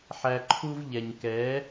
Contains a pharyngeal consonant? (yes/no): yes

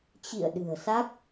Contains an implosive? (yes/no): yes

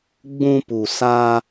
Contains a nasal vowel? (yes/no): yes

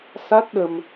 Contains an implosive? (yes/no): yes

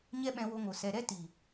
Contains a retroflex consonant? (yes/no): no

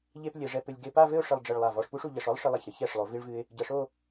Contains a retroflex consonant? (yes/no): yes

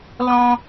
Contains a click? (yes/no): no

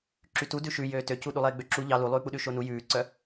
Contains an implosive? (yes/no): yes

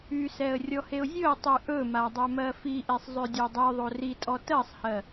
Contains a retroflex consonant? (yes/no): no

